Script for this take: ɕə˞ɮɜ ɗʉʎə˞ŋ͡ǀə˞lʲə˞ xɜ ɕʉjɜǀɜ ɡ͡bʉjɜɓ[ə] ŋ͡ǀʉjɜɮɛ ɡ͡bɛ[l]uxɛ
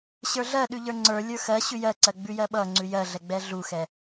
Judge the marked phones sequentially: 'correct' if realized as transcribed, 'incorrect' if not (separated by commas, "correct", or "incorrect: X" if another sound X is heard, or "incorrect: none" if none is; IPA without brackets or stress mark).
incorrect: ʌ, incorrect: ɮ